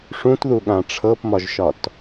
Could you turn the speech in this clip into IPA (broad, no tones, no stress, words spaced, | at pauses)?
ʂũtðuɠã ʈ͡ʂʰɤpmɒʒʃɒt